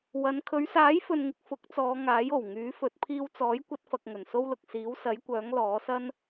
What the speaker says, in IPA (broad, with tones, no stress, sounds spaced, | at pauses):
w ɐ˨˧ n kʰ ɵ˨˧ ɥ s aː˨˥ j f ɵ˨ n ŋ ɪ˨ k̚ f ʊ˨˥ k̚ t͡s ɔː˨˧ ŋ aː˨˥ j o˨˩ w ŋ yː˨˥ f ɵ˨˥ t̚ pʰ iː˧ w t͡s ɔː˨˥ j kʷ ɐ˥ t̚ f ɐ˧ k̚ ŋ ɵ˨˩ n s o˥ w l ʊ˨ k̚ s iː˨˥ w s ɐ˨˥ j kʷ œː˨˥ ŋ l ɔː˨˥ s ɐ˥ n